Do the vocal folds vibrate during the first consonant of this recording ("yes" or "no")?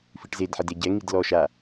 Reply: no